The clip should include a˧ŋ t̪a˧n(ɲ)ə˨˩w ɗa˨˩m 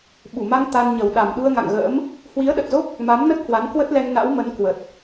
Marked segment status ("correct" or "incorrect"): correct